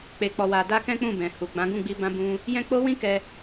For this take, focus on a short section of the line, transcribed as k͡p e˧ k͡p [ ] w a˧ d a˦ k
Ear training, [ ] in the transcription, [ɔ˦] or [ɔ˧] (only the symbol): ɔ˧